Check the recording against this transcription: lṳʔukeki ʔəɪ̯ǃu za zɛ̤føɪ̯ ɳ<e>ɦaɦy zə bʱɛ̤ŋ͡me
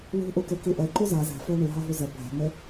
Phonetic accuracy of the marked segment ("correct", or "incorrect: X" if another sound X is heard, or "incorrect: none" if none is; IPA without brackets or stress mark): incorrect: y